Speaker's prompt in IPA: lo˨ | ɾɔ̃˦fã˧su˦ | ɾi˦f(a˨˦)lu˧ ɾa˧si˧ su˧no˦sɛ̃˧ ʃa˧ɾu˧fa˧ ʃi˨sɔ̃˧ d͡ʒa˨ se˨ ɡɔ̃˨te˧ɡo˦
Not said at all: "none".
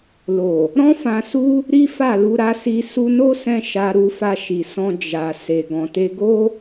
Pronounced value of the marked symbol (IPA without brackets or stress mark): a˦˨